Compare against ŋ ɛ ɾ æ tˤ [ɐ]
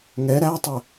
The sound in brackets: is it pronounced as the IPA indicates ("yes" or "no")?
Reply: no